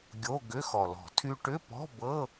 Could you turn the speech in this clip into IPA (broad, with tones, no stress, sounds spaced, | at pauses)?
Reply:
ɡʲ o˧˥˧ ɡ ʏ˧˥˧ x ɔ˨˩ l ɔ̤˧˩˧ tʰ y˧ ʈ ʏ˧˥˧ p ɔ̤˧˥˧ b ɤ˧˥˧